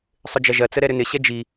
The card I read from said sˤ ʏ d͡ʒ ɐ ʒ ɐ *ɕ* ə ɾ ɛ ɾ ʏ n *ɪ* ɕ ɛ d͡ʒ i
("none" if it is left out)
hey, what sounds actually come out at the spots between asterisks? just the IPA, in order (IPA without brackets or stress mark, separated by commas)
t͡s, ɪ